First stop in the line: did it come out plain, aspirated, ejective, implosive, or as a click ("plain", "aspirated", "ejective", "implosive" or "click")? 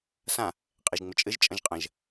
ejective